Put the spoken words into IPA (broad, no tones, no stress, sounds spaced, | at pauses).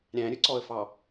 ɾʲ æ̃ ɾʲ ɵ ǀ ɔ ə̯ f ɑ